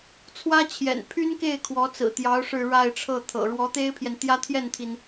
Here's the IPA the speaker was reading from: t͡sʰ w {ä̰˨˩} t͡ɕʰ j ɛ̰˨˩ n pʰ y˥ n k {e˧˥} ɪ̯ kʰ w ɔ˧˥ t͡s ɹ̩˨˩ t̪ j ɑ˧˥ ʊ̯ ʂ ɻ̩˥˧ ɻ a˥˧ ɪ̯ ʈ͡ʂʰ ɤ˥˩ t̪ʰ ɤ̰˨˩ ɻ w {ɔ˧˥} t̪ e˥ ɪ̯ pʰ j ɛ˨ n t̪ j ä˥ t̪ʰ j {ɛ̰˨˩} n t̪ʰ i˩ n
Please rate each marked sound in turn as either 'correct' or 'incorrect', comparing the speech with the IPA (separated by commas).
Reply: incorrect, incorrect, correct, incorrect